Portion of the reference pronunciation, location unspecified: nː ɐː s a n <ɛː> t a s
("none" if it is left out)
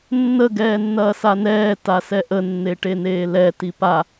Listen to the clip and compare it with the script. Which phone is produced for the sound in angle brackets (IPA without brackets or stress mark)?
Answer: ɛː